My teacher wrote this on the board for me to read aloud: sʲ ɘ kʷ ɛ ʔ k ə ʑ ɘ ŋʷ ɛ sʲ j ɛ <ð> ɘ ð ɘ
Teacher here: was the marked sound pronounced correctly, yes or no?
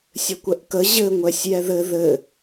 yes